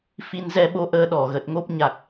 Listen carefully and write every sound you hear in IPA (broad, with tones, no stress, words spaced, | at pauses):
fi˧nzɛ˧ɓo˧ ʔəː˧ɗɔ˧˩ɣə˨˩t̚ŋo˦˥p̚ ɲa˨˩k̚